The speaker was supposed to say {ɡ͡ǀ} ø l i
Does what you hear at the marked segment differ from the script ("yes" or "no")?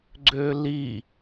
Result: no